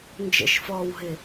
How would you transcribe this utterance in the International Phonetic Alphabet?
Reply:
n d͡ʒ ə̰ ʃ f ɔː w ɦ ɪ

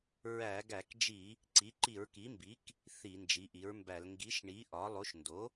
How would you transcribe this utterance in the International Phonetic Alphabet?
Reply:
ɹ æ˧˩˧ ɡ æ˧˩˧ k d͡ʒ i˧˩˧ | ǀ i˩˥ ǃ i˧˩˧ ɹ k i˩˥ m b i˩˥ k | θ i˧˩˧ n d͡ʒ i˩˥ ʔ i˩˥ ɹ m b æ˧˩˧ l ŋ ɡ i˩˥ ʃ ɳ i˩˥ ʔ ɒ˩˥ lˠ o˩˥ ʃ n d o˩˥

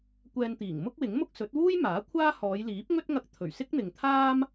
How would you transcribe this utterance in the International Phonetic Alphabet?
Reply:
kʷ ɛː˧ n t̪ iː˨˩ ŋ m ʊ˥ k̚ w ɪ˨˥ ŋ m ʊ˥ k̚ s ɵ˨˥ t̚ w uː˥ j m aː˨˥ kʷʰ aː˥ h ɔː˨˧ j l iː˨˥ p̚ ŋ ɵ˥ t̚ ŋ ɐ˧ k̚ t̪ʰ ɵ˨˩ ɥ s ɪ˥ k̚ n̪ ɪ˨ ŋ t̪ʰ aː˥ m

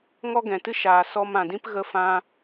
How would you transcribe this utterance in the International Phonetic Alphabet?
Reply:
ŋ ɔ˦ ɡ ɛ̃˨ t ɨ˦ ʃ aː˨ s ɔ˧ m ã˨ d ĩ˦ p ɣ ə˦ f ã˦

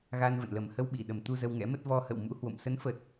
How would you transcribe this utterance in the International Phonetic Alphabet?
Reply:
ɣ a˧ n v ə̰˧˨ n l ə˨˩ m h ə˧ w ɓ i˧˩ ɗ ə˨˩ m t̪ u˧ z ə˧ w ŋ ɛ̰˧˥ m ə˦˥ t̚ v ɔ˧ h ə̰˧˨ w m ṵ˧˥ h w o̰˧˨ m s ə˨˦ n f ə˨˩ t̚

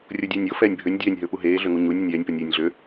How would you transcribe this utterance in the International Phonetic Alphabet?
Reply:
rʲ o dʲ ɛː nʲ o f ɛː nʲ bʱ ø nʲ dʲ ɛː nʲ ɦ ɵː p u ɦ eː ɮ ø ŋ u ɲ u nʲ ɵ nʲ ɛː nʲ p o nʲ eː nʲ ɮ ø

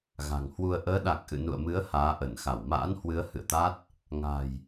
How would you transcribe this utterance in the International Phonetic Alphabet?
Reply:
ɣ a̤˨˩ ŋ h w u˧ ə̯ ʔ əː˨˦ ɗ a˨˩ k̚ ʔ ɨ̰˧˨ n ṵ˧˨ ə̯ m ɨ˨˦ ə̯ h aː˨˦ ʔ ə˧˩ n x a˧˩ w m a̰ː˧˥ n h w ɨ˨˦ ə̯ h ɨ̰˧˨ ə̯ t̪ a˦˥ t̚ | ŋ a̤˨˩ j

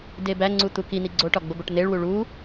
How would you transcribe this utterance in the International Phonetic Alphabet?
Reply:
d e b æ ŋ͡ǀ u t̪ u k i n̪ i ɡ͡ǀ o ʈ ɒ ɡ͡b o b o ʈ n̪ e ɭ w u ɭ u

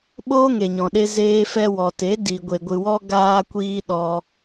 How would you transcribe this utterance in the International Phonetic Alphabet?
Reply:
ɓ oː˦ ŋ e˨ ɲ ɔ̃˨ ɗ e˧ z eː˧ f ɛ˧ w ɔ˨ t e˨˦ d i˨ ɡʷ e˨ ɡʷ ɨ˨ w ɔ˧ ɡ aː˧ kʷ iː˧ ɗ ɔ˧

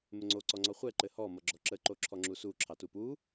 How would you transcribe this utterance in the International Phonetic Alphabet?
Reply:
m ɘ ŋ͡ǀ o ǀ ɔ ŋ͡ǀ ɔ χʷ ɛ ǃ ɘ h ɔ m ʌ ɡ͡ǁ ɔ ǁ ə ǃ o ǁʰ ɔ ŋ͡ǁ u s u ǁʰ ɑ t u p u

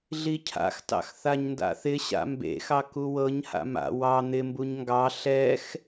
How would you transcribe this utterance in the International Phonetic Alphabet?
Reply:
ɮ i cʰ a̰ x t ɑ̰ x θ a ɲ n d a̰ θ ɪ ɕ a̰ m b ḛ x ɑ k u w ɤ ɲ h a̰ m a̰ w ɑ n̪ ɪ m b u ɲ ŋ ɡ ɑ ɬ ɛ x

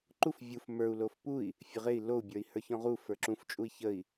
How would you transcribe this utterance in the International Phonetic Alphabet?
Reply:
ǃ u f vʲ u f m ə˞ u̯ l o f p u i̯ | fʲ ə ʁ e i̯ l o u̯ bʲ ə˞ i̯ h ə˞ ç ɔ̃ ʁ u f ə˞ ǁ ũ f t͡ʃʼ u i̯ ç ə i̯

